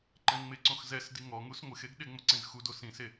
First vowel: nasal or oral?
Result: nasal